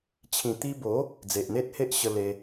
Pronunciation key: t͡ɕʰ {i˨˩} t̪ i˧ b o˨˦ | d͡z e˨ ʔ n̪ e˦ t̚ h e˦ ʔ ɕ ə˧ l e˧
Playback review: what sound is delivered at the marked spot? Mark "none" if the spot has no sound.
ĩ˨˩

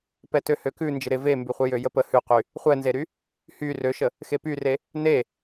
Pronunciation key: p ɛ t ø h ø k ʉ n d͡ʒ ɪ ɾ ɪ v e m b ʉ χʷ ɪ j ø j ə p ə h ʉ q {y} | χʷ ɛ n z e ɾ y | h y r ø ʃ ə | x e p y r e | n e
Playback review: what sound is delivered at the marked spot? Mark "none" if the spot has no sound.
y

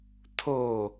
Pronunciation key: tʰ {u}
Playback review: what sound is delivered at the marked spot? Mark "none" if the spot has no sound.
o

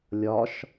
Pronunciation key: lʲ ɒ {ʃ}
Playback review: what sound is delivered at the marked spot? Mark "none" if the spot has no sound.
ʃ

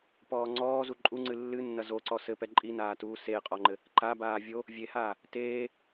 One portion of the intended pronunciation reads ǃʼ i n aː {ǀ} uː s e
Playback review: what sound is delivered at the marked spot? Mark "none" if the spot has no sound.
t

